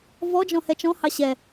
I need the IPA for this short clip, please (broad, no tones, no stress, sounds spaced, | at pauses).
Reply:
v ɔ d͡ʒ ɔ̃ h ɛ t͡ʃ ɔ̃ h ɑ ɕ ɛ